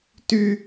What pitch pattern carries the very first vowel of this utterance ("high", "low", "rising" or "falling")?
high